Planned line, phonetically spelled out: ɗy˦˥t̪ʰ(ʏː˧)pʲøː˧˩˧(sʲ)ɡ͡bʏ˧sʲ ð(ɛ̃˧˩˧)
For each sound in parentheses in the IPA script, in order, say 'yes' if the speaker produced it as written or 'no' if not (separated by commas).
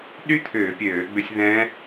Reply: no, no, no